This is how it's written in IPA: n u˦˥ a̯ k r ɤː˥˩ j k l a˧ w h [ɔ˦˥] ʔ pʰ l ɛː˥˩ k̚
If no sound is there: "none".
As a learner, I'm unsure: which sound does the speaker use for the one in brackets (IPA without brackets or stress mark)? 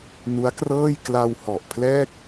ɔ˨˩